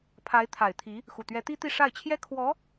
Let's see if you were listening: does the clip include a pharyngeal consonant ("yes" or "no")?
no